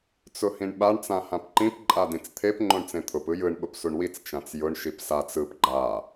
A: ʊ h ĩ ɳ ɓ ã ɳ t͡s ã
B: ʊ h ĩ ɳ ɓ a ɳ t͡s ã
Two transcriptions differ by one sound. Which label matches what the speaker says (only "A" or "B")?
B